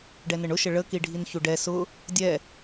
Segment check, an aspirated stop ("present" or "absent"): absent